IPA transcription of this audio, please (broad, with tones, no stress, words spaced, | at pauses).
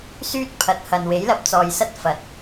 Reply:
syː˥t̚pʰɐ˨t̚hɐ˨n we˨˥jlɐ˧p̚t͡sɔː˨jsɐ˥t̚ fɐ˨˥t̚